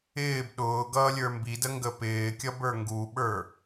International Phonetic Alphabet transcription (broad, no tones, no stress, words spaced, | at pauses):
ɪːb ɗʊː ɡʌːlʲə˞mbidə ŋɡəpɪːkʲʌb ə˞ŋɡuɓə˞